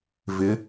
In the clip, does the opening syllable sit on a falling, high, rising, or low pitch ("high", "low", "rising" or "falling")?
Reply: rising